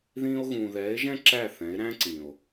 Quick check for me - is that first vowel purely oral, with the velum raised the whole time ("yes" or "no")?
no